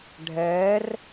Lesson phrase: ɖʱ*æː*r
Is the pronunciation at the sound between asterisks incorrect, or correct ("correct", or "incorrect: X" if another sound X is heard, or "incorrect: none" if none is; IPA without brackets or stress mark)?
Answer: incorrect: ɛː